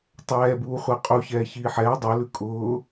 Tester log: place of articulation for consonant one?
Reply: alveolar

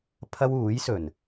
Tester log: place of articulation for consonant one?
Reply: labial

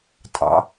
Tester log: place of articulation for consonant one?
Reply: alveolar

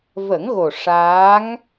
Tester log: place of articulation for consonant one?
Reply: labial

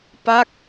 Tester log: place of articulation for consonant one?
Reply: labial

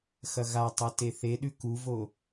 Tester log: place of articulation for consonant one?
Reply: velar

